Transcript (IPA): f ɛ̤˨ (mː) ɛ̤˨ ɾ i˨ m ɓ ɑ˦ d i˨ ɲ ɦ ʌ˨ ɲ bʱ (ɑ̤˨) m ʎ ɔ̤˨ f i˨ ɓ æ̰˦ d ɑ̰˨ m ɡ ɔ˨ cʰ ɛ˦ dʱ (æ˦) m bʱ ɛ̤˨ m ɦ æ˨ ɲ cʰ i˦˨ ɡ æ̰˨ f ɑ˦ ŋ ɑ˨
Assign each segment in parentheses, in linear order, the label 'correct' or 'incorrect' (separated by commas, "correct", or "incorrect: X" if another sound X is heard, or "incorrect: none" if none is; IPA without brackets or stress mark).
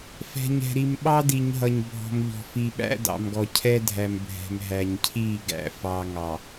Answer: incorrect: ɲ, incorrect: ɔ̤˨, incorrect: æ˨